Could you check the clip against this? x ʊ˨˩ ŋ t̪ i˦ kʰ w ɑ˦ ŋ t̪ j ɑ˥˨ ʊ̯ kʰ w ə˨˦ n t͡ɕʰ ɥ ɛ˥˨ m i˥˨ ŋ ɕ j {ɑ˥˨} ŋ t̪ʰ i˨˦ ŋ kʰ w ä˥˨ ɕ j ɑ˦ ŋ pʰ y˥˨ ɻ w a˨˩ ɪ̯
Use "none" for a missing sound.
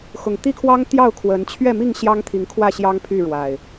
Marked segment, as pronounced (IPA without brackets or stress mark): ɑ˦